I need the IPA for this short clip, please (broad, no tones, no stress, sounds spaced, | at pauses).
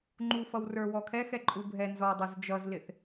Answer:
ŋ͡ǃ u f ʌ w r ə˞ w ɔ kʰ ɛ x ɛ ǃʼ u bʱ ɛ n z ɔ dˤ ʌ z d͡ʒ ʌ z l ɪ θ